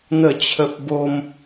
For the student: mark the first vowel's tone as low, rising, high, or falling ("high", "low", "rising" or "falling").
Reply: falling